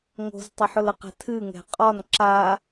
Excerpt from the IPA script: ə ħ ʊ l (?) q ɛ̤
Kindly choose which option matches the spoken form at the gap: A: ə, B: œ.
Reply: A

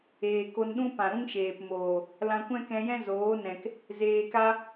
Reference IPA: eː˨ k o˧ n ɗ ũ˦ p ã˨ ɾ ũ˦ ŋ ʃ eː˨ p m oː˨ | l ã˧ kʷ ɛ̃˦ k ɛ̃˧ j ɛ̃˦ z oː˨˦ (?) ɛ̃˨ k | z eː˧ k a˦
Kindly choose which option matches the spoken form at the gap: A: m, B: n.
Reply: B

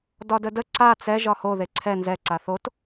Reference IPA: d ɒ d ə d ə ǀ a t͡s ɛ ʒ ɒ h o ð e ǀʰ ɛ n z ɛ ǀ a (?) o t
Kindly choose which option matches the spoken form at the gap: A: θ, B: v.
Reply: A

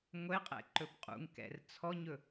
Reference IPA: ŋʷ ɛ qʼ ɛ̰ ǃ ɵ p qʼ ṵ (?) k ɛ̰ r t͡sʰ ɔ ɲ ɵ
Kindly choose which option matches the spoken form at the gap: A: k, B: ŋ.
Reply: B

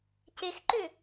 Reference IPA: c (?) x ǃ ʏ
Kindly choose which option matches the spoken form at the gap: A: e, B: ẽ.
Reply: A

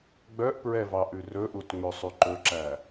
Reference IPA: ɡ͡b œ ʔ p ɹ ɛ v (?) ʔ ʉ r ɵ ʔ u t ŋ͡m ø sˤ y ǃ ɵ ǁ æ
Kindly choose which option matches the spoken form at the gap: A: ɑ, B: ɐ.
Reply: A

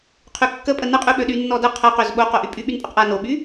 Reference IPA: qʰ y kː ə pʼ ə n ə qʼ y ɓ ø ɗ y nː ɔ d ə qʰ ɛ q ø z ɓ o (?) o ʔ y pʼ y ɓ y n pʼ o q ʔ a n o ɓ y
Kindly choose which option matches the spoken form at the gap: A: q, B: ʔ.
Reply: A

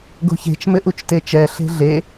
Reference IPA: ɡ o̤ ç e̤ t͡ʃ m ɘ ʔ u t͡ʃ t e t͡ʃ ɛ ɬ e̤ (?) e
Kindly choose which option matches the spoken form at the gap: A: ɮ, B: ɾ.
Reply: A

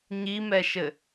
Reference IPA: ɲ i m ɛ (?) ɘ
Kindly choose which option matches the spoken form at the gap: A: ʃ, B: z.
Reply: A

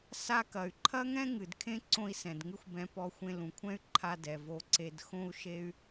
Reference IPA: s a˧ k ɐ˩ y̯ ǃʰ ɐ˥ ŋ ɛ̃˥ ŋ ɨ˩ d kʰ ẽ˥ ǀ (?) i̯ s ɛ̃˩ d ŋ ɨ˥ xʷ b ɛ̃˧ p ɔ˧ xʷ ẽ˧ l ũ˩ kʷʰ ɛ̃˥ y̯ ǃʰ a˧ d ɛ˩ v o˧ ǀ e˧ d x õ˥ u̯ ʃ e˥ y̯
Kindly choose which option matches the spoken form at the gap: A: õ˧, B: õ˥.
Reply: A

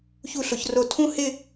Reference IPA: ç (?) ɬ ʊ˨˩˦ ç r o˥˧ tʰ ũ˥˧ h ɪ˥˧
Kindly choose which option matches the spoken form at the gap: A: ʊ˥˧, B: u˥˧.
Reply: B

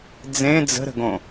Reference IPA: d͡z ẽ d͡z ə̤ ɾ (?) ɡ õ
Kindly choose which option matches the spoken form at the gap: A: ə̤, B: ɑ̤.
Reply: A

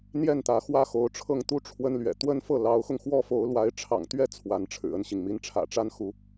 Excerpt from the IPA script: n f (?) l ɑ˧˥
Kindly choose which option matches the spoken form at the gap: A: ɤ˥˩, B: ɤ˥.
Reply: A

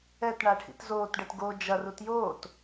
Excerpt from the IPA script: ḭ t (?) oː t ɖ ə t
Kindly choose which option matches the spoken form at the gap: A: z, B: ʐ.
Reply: A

